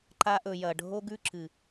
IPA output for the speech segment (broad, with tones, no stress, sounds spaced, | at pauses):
ǃ a˧ ʔ ɵ˨ j ɐ˨ ɖʱ o˦ ɡ ʉ˦ ǁ ɨ˨